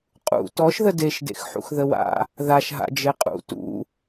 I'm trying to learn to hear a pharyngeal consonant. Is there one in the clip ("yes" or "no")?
yes